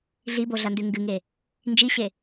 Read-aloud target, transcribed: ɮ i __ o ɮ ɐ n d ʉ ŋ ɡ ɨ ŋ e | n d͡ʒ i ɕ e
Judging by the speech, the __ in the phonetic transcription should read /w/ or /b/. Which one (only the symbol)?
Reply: b